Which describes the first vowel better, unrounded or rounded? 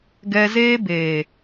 unrounded